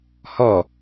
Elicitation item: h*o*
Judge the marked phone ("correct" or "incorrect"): incorrect